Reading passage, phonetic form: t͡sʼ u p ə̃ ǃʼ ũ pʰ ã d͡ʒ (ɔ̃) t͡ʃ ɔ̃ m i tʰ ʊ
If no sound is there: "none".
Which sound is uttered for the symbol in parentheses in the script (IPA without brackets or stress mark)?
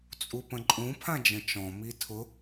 ə̃